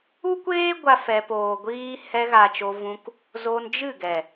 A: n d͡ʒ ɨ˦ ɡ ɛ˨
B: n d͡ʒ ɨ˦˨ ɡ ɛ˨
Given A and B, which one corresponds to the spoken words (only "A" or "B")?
B